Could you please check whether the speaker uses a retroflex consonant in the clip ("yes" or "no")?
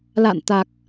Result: no